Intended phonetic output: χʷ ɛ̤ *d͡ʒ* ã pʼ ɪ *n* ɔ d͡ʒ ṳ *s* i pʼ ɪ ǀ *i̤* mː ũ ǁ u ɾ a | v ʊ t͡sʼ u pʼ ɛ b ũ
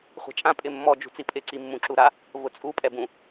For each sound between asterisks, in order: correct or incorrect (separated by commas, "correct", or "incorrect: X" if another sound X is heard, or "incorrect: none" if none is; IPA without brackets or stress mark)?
incorrect: t͡ʃʼ, incorrect: mː, incorrect: t͡s, incorrect: i